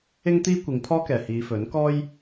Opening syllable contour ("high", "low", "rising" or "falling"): high